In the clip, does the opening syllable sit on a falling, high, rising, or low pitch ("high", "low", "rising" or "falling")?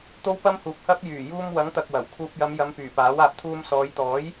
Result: high